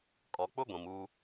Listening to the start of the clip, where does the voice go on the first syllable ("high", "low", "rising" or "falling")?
low